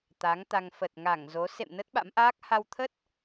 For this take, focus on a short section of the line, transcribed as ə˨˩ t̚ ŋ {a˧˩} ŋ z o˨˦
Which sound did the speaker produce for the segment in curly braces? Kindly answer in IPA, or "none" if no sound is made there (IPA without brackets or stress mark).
a˧˩